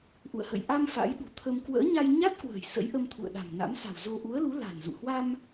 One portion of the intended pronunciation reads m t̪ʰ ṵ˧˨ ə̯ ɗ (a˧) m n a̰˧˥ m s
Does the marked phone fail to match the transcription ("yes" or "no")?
yes